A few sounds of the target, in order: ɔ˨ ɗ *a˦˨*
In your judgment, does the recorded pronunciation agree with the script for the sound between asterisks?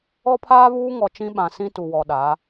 no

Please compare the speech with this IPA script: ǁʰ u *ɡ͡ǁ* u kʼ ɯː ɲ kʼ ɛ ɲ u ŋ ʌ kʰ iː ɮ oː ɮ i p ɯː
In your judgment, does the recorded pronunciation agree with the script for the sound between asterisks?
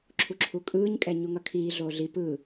no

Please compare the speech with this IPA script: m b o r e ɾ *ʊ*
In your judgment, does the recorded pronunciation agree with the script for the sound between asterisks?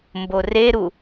no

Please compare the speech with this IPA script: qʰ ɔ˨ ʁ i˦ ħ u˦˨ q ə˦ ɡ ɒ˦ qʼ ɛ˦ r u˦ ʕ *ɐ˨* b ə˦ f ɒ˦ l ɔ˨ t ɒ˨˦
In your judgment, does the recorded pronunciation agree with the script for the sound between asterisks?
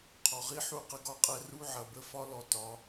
yes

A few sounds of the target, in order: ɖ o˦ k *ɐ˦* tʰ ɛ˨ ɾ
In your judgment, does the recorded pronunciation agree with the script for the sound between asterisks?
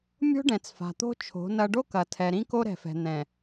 no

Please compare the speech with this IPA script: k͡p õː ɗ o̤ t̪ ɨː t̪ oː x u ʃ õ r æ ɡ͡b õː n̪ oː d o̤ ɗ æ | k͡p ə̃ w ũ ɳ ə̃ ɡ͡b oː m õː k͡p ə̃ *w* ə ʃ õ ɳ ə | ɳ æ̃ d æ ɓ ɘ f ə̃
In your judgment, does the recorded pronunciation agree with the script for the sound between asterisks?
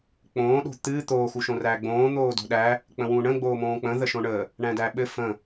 no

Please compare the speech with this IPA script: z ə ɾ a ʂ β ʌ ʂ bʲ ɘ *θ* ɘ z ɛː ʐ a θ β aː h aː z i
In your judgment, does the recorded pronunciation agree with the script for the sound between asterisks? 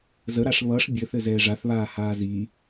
yes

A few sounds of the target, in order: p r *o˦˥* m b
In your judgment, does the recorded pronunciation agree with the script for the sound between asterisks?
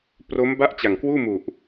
yes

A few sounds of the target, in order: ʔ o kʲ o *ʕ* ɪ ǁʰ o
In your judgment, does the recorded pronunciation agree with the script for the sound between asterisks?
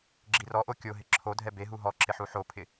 no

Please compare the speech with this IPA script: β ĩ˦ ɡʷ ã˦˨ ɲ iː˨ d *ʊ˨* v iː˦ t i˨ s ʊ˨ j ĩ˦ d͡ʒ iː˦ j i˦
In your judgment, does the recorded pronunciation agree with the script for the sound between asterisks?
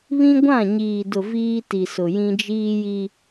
yes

